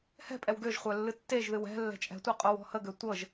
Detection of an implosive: absent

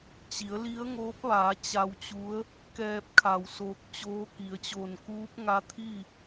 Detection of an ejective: absent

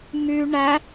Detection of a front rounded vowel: present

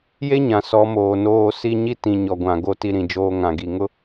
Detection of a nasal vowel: present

